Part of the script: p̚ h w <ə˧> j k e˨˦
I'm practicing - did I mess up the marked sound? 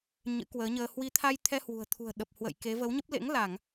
yes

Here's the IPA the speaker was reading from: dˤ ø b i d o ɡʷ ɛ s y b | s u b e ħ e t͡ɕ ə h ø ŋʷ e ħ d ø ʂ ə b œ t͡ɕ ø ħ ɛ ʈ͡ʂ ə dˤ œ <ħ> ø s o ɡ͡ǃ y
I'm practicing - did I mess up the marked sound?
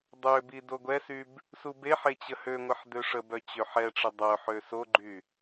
no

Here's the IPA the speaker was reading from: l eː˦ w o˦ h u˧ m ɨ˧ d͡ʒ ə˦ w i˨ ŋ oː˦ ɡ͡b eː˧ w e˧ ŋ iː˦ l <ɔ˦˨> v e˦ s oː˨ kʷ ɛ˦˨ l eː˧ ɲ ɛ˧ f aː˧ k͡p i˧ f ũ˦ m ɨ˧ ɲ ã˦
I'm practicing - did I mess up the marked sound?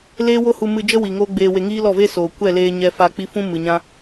no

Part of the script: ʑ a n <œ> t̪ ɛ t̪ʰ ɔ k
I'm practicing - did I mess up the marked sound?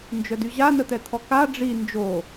yes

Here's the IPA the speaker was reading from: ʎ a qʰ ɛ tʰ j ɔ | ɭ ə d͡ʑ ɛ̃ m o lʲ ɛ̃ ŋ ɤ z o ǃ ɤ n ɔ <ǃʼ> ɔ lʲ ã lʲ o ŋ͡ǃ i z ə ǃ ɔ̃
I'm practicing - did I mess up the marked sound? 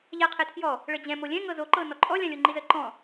no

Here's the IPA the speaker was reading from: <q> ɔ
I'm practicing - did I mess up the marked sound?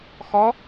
yes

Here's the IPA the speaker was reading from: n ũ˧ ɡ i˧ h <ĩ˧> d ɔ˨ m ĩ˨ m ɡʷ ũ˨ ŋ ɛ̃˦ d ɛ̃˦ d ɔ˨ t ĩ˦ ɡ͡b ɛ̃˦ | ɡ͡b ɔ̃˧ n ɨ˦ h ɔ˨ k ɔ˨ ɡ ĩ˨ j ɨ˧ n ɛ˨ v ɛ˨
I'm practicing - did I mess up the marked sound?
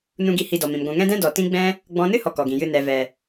yes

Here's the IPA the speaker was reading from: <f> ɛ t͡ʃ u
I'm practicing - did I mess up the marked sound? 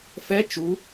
no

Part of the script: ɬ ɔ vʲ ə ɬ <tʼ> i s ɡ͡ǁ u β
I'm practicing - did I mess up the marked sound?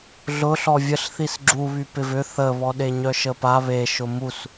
yes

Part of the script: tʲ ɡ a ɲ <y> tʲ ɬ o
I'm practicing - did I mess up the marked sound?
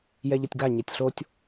yes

